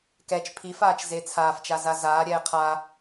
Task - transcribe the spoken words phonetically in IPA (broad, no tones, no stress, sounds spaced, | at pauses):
k ɛ t͡ʃ pʰ i f aː t͡ʃ z e t͡sʰ aː f t͡ʃ a z a z aː ɾʲ ɛː qʰ a